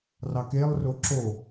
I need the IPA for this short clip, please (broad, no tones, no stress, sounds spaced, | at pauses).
r ɑ k e lˠ r o ǁ o